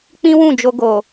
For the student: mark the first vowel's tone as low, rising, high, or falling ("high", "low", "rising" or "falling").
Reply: high